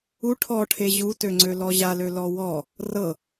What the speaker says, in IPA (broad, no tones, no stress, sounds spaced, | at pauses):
u ʈʰ ɔ ʈʰ e ʑ u t ø ŋ͡ǀ ø l ɔ ʑ a l ø l ɔ w ɔ | r ɤ